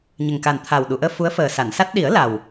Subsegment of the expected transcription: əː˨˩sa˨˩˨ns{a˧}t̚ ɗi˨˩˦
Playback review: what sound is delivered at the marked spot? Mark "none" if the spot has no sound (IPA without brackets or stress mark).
a˦˥